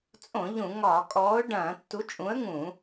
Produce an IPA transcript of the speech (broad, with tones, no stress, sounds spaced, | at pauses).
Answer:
t͡sʼ õ˧˩˧ ʎ ũ˧˩˧ ŋ ɒː˧˩˧ kʼ ɔː˨˥ ʊ̯ ɖ ɐ̃ː˧˩˧ tː u˨˥ t͡ʃʼ ũ˨˥ ə̯ ŋ ũ˧˩˧